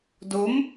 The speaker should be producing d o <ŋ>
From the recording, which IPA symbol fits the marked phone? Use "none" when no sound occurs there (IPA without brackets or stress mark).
m